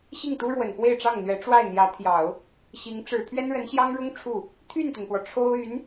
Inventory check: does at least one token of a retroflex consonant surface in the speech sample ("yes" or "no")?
yes